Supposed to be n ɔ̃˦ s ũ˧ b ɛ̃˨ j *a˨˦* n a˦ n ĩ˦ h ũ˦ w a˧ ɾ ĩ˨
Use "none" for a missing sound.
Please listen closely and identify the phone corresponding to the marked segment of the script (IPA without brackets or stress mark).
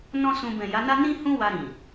a˨˦